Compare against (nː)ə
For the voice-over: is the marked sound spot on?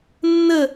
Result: yes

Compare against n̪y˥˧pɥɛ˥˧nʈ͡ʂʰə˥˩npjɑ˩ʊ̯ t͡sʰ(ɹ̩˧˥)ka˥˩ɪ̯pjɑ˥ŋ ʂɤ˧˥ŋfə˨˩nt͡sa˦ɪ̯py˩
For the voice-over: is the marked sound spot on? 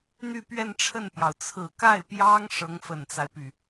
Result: no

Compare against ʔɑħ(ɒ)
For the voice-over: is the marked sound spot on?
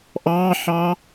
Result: no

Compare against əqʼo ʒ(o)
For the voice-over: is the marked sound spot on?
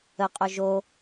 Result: yes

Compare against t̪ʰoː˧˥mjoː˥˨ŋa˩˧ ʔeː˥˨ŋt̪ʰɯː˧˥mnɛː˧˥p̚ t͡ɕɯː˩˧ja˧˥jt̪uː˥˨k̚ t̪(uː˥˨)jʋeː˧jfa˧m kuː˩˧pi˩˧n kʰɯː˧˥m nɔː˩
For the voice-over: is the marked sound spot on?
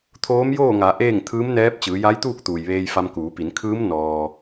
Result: no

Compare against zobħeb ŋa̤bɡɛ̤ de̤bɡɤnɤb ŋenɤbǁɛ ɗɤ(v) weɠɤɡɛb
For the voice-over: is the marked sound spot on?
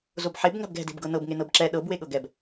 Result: no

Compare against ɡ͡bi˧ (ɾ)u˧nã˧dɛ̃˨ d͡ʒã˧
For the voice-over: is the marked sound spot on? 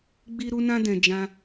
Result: yes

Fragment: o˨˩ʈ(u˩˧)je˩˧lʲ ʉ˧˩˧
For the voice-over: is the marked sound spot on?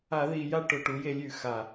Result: yes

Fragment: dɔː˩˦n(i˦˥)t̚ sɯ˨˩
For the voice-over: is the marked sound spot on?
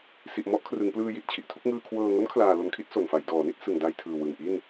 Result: no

